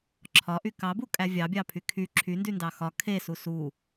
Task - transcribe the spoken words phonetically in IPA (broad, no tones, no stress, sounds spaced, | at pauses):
ǁʰ ɒ ʔ y k ɑ b u kʼ æ vʲ ɑ bʲ ɑ pʰ y kʰ y ǁʰ y n d y n d ɑ x ɒ kʰ e s u s u